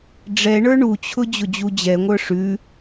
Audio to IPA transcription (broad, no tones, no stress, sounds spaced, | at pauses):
ɖ͡ʐ ɛ ɳ ə˞ ɳ u t͡ɕʰ ʊ d͡ʑ ʊ d͡ʑ u d͡ʑ ɛ ŋʷ ə˞ ʂ ʉ